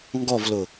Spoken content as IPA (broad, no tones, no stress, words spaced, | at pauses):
ŋɡɔvlʊ